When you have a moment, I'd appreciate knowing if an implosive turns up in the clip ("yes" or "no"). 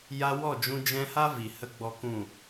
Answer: no